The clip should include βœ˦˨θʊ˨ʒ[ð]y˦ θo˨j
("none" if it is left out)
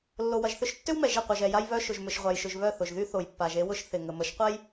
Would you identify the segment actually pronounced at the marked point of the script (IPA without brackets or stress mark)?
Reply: ð